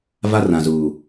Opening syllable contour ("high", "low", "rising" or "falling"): high